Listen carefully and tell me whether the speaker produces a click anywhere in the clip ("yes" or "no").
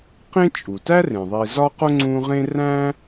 yes